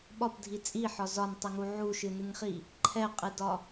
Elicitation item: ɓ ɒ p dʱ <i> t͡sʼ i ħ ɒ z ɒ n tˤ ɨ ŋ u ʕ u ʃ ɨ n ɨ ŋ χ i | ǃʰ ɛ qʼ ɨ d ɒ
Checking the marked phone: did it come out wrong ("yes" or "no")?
no